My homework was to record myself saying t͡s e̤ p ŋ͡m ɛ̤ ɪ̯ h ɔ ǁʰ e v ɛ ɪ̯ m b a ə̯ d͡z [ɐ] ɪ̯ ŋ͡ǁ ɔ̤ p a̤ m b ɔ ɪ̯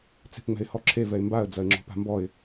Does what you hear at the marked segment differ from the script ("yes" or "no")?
no